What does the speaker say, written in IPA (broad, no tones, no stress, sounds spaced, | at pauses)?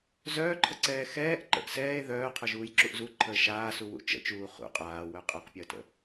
z œː ǃʰ ə ǀ ɛː x ɛː ʔ ǃ ə̰ ʔ s ɛː e̯ ð œː qʰ œ ʒ uː j ǁ u ʔ z u ǃʰ əː ʃ aː s u w ṵ t͡ʃ ə̰ t͡ʃ uː χ ṵ qʼ aː w œ qʼ a q pʲ əː t ə̰